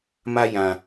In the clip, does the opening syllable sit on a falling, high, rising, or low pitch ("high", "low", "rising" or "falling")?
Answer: high